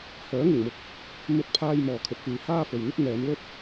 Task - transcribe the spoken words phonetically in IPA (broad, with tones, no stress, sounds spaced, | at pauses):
h œː˨˥ ŋ ɪ˨˩ ŋ m ʊ˨ k̚ | m ɵ˧ t̚ pʰ aː˧ j m ɔː˨ kʰ ɵ˨˥ t̚ f yː˨ h aː˥ f ɵ˨ ɥ n̪ ɵ˥ t̚ n̪ ɛː˨˧ m l ɵ˥ t̚